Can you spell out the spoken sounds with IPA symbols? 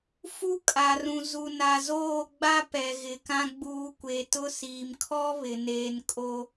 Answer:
f u˦ kʼ a˨ r ũ˨ z u˨ n a˨ z oː˦˨ ɡ͡b a˦ p ɛ˨ ɣ ɪ˨ k ã˦ ɡ͡b uː˨˦ kʷ e˨ t ʊ˦ s iː˨ m kʰ ɔ˦ β ɪ˨ n eː˨ n kʼ o˦

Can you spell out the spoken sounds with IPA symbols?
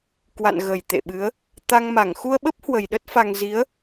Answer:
k w a̰˧˨ n ɣ ə˨˩ j t̪ ḛ˧˨ ɓ ɨ˨˦ ə̯ | t̪ a˧ ŋ m a˧˩ ŋ x u˧ ə̯ ɓ ə˦˥ p̚ h w ə˨˩ j ɗ ə˦˥ t̚ f a˧ ŋ z i˨˦ ə̯

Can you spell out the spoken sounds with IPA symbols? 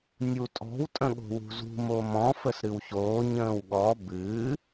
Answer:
nʲ u tʼ ɔ̤ w tʼ ə̃ ɠ o̤ w ṳ z ṳ m o m ɔ̃ f ə s ɾ ɨ w ç oː ɲ ə̃ː w ɠ ɔ b ɨ

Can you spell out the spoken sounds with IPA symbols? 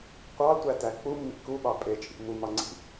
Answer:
qʷ ɑ tʷ æ t æ k͡p u mː ḭ k u ɓ ɑ pʼ e t͡ʃʼ ḭ m u m ɑ ŋ͡ǀ ḭ

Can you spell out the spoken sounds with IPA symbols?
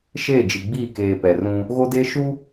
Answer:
ʃ eː˦˨ d͡ʒ i˨ ɡ͡b iː˦˨ k eː˨ p ɛ˨ r ũ˦ | ɣ o˦ d eː˦ ʃ uː˦

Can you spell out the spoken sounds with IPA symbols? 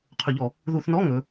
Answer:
qʰ ɵ˧˩˧ ʎ ɔ˧˩˧ | ð u˧˩˧ θ n ɔ˧˥˧ ŋ ɵ˩˧

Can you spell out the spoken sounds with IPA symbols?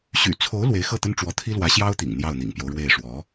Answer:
ɕ y̰˨˩ t͡sʰ o˧˥ ʊ̯ l w e˧˥ ɪ̯ x ɤ˥˩ t̪ ə˥ n ʈ͡ʂ w ɔ˧˥ t̪ʰ i˥ l w ä˧˥ ɕ j ɑ˥ ʊ̯ t̪ ḭ˨˩ ŋ n̪ j ɑ˥˩ ʊ̯ n̪ ḭ˨˩ ŋ p j o˦ ʊ̯ ɻ w e˥˩ ɪ̯ ʂ w ɔ˧˥

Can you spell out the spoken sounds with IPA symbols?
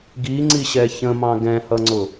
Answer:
ɡ i ŋ͡ǀ i ɕ ɛ ç ə̃ m ɑ̃ ɡ ɛ̃ h ʌ ŋ͡ǀ ʊ

